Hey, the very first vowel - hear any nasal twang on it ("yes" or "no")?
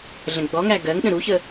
yes